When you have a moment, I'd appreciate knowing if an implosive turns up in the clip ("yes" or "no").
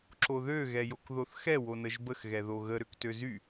no